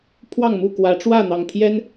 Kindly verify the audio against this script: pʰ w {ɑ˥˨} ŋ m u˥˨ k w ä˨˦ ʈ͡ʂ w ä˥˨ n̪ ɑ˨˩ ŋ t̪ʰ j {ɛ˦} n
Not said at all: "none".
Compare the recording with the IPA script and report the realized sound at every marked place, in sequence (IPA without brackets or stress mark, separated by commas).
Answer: ɑ˥˨, ɛ˦